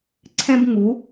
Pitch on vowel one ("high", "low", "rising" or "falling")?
high